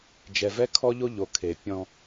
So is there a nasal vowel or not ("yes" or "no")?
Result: yes